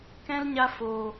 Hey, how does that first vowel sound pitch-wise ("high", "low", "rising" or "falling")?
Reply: high